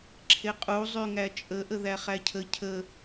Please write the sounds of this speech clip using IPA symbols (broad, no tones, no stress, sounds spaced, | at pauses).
ǁʰ e qʼ u zˤ y ŋ æ t͡ʃʼ ə ʔ ə ð æ χ æ cʰ ə cʰ ə